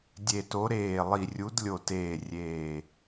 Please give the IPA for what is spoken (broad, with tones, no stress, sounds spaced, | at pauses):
dʲ e˧˩ t o˧˥ ɾ eː˧˩ lˠ i˧˩ rʲ u˧˥ d lʲ o˧˩ t eː˧˩ rʲ eː˧˩